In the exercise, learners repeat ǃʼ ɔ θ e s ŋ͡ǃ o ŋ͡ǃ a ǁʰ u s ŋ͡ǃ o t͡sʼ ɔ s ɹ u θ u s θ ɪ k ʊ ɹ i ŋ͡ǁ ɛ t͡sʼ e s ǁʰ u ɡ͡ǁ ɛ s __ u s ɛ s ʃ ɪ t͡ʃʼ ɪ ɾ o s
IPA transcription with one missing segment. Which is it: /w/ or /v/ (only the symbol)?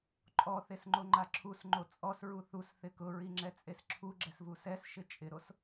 v